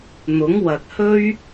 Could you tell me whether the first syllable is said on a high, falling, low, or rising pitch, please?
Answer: rising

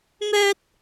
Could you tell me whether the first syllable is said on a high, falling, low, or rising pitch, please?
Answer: high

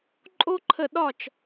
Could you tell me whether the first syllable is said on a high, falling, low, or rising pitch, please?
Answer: high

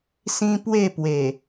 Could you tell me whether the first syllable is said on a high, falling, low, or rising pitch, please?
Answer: high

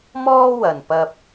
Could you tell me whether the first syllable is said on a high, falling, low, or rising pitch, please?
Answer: high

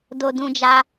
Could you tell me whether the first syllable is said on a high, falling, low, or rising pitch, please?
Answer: high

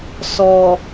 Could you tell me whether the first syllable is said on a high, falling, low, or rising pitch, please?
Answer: low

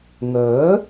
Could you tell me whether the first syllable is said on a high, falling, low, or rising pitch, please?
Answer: rising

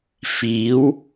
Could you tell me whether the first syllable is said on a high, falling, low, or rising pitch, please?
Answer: rising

